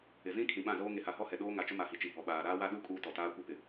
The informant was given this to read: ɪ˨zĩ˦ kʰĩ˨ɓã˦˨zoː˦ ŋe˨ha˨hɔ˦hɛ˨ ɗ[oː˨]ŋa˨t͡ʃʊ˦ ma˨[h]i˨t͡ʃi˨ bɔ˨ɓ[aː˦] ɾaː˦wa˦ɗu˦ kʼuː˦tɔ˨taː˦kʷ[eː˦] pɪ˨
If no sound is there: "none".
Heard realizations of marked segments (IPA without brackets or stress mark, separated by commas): oː˦, h, aː˨, e˦